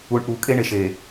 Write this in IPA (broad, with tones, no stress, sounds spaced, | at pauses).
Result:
u˨ ɳ ʔ u˨ kʼ e˦ ɳ e˨ ʃ e˨